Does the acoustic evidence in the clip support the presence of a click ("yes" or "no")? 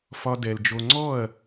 yes